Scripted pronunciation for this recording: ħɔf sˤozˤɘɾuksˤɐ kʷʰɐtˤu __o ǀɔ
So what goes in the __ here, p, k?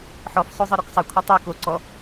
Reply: k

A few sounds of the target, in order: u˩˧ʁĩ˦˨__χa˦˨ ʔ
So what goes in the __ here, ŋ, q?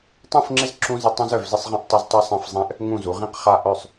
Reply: q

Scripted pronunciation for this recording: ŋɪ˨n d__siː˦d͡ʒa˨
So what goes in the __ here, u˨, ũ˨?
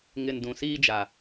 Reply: ũ˨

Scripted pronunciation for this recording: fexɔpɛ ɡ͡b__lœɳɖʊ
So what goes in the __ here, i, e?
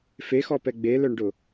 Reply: e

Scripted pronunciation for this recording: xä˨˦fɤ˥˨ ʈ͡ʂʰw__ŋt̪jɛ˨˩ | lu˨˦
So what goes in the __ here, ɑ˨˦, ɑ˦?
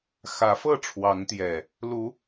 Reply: ɑ˨˦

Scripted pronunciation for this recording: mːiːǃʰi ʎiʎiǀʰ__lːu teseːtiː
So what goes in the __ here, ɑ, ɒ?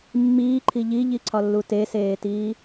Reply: ɒ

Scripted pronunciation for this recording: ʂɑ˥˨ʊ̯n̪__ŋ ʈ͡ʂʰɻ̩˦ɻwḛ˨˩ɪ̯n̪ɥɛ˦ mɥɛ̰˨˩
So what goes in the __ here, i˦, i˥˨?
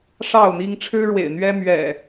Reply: i˦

